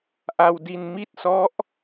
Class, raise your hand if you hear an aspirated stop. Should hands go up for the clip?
no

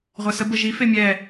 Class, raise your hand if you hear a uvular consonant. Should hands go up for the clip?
yes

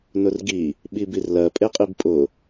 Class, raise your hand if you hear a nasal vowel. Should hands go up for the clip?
no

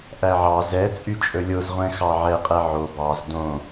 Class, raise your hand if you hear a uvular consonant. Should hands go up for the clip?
yes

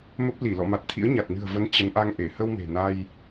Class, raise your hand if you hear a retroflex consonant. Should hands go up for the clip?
no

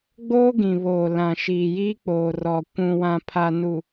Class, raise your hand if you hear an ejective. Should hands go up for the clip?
no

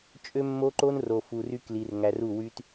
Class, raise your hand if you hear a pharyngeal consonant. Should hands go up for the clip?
no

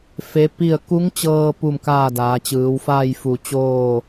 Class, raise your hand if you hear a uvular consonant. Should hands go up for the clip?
no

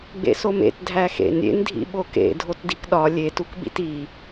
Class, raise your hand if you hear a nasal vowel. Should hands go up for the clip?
no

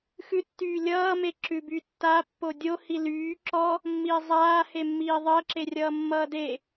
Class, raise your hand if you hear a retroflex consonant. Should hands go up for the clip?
no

